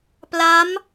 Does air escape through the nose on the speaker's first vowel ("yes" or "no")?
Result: no